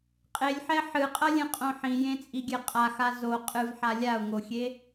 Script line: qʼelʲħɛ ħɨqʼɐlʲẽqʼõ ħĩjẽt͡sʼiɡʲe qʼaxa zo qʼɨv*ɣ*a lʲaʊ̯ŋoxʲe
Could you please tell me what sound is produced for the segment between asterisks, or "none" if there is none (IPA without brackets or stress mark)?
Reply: ħ